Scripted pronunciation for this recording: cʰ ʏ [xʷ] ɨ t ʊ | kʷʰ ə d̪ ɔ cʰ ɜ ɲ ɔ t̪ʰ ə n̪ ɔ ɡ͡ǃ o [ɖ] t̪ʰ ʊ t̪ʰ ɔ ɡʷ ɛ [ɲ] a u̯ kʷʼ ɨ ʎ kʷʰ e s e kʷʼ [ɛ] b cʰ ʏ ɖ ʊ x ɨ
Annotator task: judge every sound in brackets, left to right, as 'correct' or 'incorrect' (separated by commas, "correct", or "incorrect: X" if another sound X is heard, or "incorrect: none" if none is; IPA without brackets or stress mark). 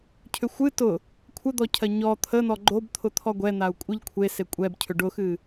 correct, incorrect: b, incorrect: n̪, correct